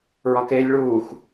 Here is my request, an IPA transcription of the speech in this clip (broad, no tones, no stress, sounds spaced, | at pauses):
ɹ ɒ k eː lʲ ɭ uː x